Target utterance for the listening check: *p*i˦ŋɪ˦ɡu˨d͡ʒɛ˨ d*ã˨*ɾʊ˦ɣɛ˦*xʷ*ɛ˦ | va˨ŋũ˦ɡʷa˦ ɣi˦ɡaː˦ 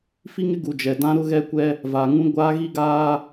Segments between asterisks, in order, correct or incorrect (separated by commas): incorrect, incorrect, incorrect